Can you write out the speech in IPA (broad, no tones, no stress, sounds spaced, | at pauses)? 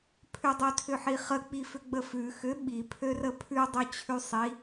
pʰ ʏ dˤ ø tʰ ʏ ħ i χ ə k͡p i f ʏ ɡ͡b ə f ʉ x ʏ ɓ i pʰ ø r ə pʰ ʉ dˤ ʉ t͡ɕʰ ʉ sˤ i